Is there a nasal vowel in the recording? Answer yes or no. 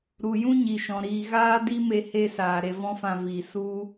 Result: yes